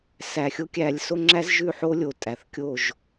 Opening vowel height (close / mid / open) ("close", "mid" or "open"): open